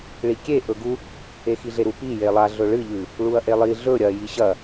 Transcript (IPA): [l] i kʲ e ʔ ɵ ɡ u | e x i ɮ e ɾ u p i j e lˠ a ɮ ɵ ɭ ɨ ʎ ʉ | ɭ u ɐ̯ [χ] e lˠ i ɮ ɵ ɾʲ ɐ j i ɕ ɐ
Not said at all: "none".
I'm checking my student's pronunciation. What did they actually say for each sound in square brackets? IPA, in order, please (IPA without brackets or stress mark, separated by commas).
ɭ, ʔ